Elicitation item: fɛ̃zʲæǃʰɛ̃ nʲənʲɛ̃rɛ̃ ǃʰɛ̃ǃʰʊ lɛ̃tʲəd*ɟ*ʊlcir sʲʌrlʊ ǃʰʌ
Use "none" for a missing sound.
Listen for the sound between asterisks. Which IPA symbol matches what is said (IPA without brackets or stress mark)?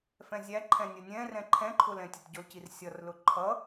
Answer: ɟ